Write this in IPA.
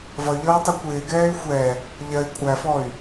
vʌy̯ʎʌːtˤʊ kʷɪːɡɛːy̯ xʷɛ | ʎɜi̯ kʷʼæfɔy̯

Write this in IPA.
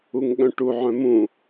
uŋɠœ̃ʈuʕœ̃ mũ

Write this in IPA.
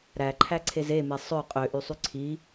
ɾæǃʰæǀʰez eme sˤø qʼøʔysˤy ǀʰi

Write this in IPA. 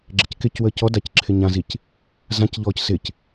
ɡ͡ǁɪckɪcwəːc ɔdac ǁʰɪɲãzic | zãcʎɔːc sɪc

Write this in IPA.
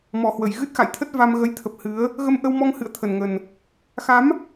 mɔ˨˩hwə˧˩j ɣɨ˦˥t̚xa̰˧˨jt̪ʰə˦˥t̚ va˧m ɣə˨˦jt̪ʰə˨˩p̚ hɨ˨˦ə̯ | ɣə˧mʔə˧wmɔ˧ŋ hɨ̰˧˨ə̯ t̪ʰə˨˩nŋə˨˩n | xa˨˦m

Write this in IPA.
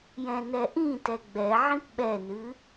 jɛ̃nɛʔĩtɛ ɡ͡bɛ ʕĩpɓɛnɨ

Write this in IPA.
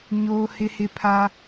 ɲoː˦hɪ˦hɪ˦ pʰa˦

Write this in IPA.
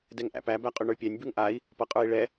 dɛŋʔæ̰pæ bæqʼʉɳə˞pʲænʲ bʉŋʔai̯ | pʌqʼə˞i̯ɭɛ

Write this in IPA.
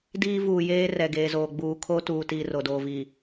diː˦ vuː˨jeː˦rɛ˨ɡeː˨ zoː˨ɡ͡buː˨kʰo˦ tuː˨tiː˨ ro˨doː˨vi˨

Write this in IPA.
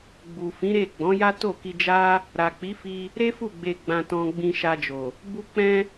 ɡ͡bu˨fĩ˨˦ɾe˦˨ ɡ͡bɔ̃˨˦ja˦to˦˨ki˧ d͡ʒa˦ | ɾa˨k͡pi˨˦fi˧ | ɾe˦fu˦˨ ɡ͡be˧ ɡ͡bã˧tɔ̃˧ ɡ͡bĩ˧ʃa˧d͡ʒo˨ | bu˧k͡pɛ̃˧

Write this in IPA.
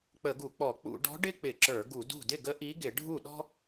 k͡pə˧˩˧ɡu˧˩˧k͡pɔ˧˩˧ k͡pṵ˧˩˧ɖɔ̤˧˥ ɖɪ˥k͡pɪ˧˩˧ǁə˞˧˩˧ ɡu˧˩˧dṳ˥˩ dɪ˥˩ɡə˧˥ ʔi˧˥ ɡɪ˧˩˧ɖʱu˥˩ɗɔ̤˥

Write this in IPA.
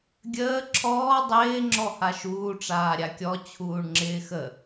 ɡʲəː ǁʰɔː dˤɪː ŋ͡ǁɔhaʃuː ʈ͡ʂaːɾʲakʲɔ t͡ɕʰuːɳŋ͡ǁɪːxə

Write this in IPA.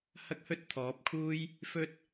hɐ˥k̚hɵ˥t̚t̪ʰɔː˨˥p̚kʰuː˥j | fɵ˥t̚

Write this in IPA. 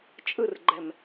t͡ʃʼɯrɡ͡ǃɛm

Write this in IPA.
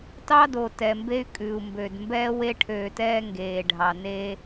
tɑ˦do˨ tɛ˨mbe˦y̯ kʼʉ˨u̯mbø˨d mbɛː˦ we˦ʈʰøː˨tɛː˦ ŋɡeː˨ɖʱɑ˨ neː˦

